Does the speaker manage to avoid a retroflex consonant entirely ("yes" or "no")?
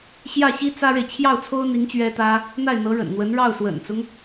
no